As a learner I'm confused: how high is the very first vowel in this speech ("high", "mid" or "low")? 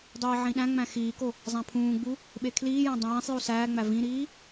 high